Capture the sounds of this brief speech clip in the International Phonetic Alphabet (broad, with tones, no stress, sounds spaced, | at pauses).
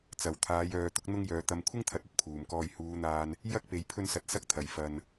t͡s ɐ˨˩ w t̪ʰ aː˨˧ j œː˧ t̪ ʊ˥ k̚ n̪ ʊ˥ ŋ j œː˨ t̪ ɐ˨ m kʷʰ ɪ˥ ŋ t̪ʰ ɐ˨˥ t̚ ɵ˥ t̚ pʰ uː˨˩ m k ɔː˧ j h uː˨˧ n̪ aː˧ n | j ɐ˥ k̚ p e˨ j pʰ ɵ˥ n s ɐ˧ t̚ s ɐ˥ k̚ t̪ʰ ɐ˨˩ j f ɐ˧ n